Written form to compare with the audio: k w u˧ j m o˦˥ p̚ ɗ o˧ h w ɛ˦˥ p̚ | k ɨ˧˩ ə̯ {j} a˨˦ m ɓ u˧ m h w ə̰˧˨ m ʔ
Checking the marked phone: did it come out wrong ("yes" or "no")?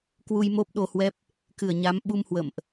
yes